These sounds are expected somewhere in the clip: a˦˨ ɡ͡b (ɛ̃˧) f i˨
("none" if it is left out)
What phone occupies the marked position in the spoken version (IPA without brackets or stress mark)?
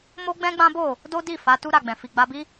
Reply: ɛ̃˨